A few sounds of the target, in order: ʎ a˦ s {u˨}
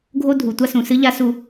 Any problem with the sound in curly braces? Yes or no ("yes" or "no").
yes